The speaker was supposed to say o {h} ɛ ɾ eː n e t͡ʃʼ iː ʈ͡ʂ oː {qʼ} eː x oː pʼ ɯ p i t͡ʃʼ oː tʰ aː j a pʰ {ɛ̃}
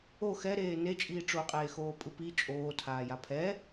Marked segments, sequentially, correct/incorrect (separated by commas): incorrect, correct, incorrect